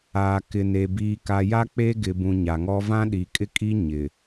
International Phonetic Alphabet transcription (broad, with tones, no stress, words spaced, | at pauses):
aː˨kɪ˨ne˨ biː˨ka˨ja˦ k͡pe˦ɡɪ˨bũ˨ ɲa˨ŋɔ˦ vã˦ɗi˨kʼɪ˦kʼi˦ ɲɪ˨